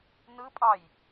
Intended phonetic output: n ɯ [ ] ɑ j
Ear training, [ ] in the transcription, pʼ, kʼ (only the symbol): pʼ